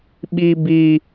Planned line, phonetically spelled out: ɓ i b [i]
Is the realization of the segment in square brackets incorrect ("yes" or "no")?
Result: no